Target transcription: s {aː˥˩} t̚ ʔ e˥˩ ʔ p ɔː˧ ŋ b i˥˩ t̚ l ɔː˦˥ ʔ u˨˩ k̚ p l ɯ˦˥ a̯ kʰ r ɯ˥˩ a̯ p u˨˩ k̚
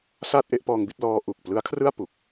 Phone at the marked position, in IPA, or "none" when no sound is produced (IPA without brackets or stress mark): aː˥˩